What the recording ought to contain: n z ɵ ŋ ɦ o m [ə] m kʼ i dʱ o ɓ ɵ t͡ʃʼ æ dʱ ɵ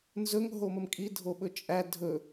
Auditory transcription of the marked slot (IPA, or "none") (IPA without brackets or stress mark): ə